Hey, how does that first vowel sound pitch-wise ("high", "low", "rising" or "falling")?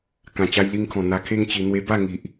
low